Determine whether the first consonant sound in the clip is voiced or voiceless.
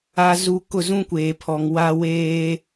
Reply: voiced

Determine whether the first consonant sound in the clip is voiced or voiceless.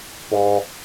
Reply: voiceless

